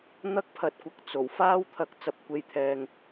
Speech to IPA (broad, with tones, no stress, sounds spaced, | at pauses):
n̪ ɐ˥ k̚ pʰ ɐ˧ t̚ kʷ ɐ˧ k̚ t͡s o˨˩ w f aː˥ w t̪ʰ ɐ˧ k̚ t͡s ɐ˧ p̚ kʷ e˧ j t̪ʰ ɛː˧ ŋ